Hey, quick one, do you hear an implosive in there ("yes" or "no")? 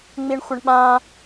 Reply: yes